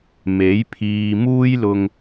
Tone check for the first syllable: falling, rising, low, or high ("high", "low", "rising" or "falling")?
rising